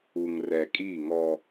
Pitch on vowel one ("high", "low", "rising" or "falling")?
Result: low